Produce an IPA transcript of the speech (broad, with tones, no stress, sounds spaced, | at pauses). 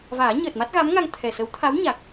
v aː˨˩˦ ɲ əː˨˩ t̚ m a˦˥ t̚ ɣ a˧˥ m ŋ a˧ ŋ t̪ʰ ɛ˨˩ s ə˧˥ w t̪ʰ a˧˥ w ɲ a˨˩ k̚